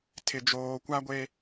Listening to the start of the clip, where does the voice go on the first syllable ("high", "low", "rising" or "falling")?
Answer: low